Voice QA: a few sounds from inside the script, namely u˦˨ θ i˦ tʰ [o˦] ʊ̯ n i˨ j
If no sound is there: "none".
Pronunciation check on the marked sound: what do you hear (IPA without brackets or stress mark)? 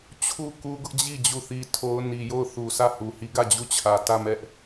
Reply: o˦